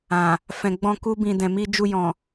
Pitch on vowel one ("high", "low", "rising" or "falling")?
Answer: low